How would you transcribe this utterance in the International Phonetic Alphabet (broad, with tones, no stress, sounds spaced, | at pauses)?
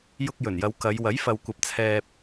j ʊ˧ k̚ j ɵ˨˩ n j ɐ˨˧ w k ɐ˨˧ j w ɐ˨˥ j f ɐ˨ w kʷ ɐ˨˥ p̚ t͡sʰ ɛː˧ p̚